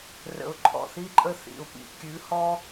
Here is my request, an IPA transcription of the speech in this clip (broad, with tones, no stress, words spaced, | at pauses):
rə̰˨ʊ̯ǃʰɔ̰˨θi˧ǃʼə˧ θḭ˨ʊ̯pḭ˨ kʲʉ˨˦hɔ˦